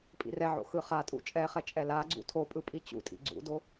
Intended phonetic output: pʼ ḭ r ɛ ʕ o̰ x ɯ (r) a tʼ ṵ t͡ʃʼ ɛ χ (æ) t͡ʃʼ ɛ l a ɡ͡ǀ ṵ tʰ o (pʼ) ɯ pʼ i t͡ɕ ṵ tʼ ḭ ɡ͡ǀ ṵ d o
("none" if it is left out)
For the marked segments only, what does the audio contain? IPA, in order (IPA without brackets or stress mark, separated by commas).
χ, ɛ, pʼ